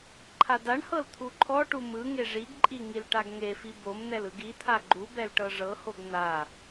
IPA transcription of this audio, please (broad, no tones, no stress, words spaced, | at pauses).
ǃʰadaɳhɤl t̪ʰuǃʰɔʈu mɯ ŋeʐiɡǃʼi ŋilʈaɡŋefi bomn̪ɛl ɯɡit̪ʰa ɡ͡ǃubɛl ʈɤʐɤhoɡ n̪a